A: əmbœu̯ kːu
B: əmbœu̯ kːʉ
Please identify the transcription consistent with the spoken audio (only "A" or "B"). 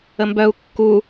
A